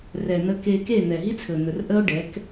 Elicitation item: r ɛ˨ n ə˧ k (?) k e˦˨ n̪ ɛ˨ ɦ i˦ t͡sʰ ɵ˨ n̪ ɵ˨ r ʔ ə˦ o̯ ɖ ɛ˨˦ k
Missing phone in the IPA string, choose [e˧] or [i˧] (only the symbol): e˧